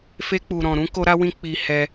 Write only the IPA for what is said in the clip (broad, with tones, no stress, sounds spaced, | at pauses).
f e˦ k͡p u˧ ɾ ɔ̃˧ ɾ ũ˦ k o˦ ɾ a˦ w ĩ˦ k͡p i˦ h ɛ˧